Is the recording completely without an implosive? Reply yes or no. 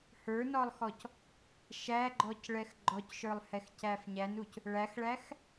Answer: yes